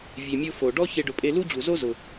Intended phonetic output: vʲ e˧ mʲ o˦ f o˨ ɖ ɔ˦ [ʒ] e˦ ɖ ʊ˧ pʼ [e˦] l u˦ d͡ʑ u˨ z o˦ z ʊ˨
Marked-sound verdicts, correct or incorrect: incorrect: ç, correct

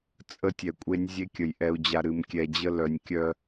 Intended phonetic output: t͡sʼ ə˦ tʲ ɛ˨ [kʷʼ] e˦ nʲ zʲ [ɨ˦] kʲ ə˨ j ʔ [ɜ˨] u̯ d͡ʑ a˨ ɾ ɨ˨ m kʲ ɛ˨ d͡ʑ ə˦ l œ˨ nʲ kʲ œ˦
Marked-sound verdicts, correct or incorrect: correct, incorrect: e˦, incorrect: ɛ˨

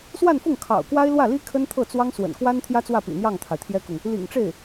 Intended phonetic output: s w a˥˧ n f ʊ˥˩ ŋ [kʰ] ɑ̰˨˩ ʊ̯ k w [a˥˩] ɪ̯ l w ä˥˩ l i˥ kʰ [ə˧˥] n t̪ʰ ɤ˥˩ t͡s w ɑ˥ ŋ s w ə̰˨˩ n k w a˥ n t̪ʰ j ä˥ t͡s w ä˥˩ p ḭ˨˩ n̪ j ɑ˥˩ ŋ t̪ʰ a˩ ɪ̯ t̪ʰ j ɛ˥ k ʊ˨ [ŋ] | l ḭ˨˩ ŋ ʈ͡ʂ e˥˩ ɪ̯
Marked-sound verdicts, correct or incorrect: correct, incorrect: a˥, incorrect: ə˥, correct

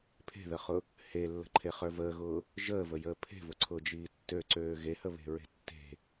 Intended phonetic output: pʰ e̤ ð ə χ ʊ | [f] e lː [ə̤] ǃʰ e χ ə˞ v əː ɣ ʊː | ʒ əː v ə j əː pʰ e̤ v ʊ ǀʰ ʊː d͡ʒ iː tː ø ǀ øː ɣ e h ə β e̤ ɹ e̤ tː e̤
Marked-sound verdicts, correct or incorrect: incorrect: h, correct

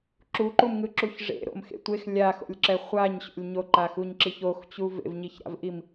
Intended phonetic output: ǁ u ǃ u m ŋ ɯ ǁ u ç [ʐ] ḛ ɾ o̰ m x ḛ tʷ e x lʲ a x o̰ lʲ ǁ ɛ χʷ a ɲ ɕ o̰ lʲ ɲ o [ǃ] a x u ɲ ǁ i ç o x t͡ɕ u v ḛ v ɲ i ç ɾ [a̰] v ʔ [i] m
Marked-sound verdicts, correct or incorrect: correct, correct, correct, correct

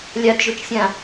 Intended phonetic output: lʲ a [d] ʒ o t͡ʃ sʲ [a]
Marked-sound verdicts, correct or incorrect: correct, incorrect: ã

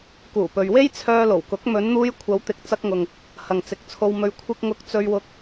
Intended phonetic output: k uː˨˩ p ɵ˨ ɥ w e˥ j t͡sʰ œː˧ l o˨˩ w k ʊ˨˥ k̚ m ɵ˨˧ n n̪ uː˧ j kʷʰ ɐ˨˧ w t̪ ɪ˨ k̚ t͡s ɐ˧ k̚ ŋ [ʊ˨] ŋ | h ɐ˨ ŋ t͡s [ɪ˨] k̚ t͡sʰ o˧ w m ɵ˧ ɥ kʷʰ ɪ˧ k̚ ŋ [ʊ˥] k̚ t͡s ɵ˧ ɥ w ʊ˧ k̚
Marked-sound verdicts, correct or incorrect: correct, incorrect: ɪ˨˥, incorrect: ʊ˧

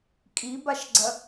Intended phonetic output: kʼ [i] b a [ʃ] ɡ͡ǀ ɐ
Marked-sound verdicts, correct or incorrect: correct, correct

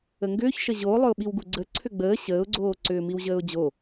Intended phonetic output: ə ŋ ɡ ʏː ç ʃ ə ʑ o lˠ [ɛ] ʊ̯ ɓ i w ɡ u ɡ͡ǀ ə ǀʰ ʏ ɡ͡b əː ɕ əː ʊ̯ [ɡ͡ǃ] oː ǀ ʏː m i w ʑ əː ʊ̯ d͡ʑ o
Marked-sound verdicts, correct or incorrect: incorrect: ʏ, incorrect: ɡ͡ǀ

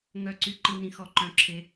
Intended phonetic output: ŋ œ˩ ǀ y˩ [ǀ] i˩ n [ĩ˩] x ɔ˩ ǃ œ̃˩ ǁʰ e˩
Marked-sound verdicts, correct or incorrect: incorrect: ǃ, correct

